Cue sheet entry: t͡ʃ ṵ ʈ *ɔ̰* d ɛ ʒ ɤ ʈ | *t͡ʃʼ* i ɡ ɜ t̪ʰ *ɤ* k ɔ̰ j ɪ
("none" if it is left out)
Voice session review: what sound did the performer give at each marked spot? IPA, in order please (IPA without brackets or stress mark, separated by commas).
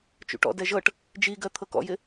ɔ̰, d͡ʒ, ɤ